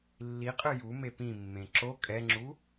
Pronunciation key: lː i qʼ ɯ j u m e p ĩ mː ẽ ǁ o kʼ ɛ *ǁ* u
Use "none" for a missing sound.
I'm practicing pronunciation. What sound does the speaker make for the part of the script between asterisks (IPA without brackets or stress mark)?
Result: ŋ͡ǁ